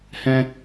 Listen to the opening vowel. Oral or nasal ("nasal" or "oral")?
nasal